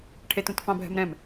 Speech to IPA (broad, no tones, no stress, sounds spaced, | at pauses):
ʈʰ e t ũ t f ɑ̃ bʱ ɛ̤ m ɾ ɛ̃ m